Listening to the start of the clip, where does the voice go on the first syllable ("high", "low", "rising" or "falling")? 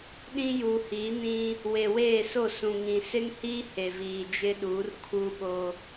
high